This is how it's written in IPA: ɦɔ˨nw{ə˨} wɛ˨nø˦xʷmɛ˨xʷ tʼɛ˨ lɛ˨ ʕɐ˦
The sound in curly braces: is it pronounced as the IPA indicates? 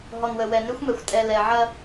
yes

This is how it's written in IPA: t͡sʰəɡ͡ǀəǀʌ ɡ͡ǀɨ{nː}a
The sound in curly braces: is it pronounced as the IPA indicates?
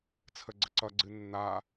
yes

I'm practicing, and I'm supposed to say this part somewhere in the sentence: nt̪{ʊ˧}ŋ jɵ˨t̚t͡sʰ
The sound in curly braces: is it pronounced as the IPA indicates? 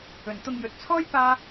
yes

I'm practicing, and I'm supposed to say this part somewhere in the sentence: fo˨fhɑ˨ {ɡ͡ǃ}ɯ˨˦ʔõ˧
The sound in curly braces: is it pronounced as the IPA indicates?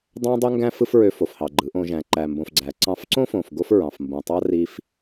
yes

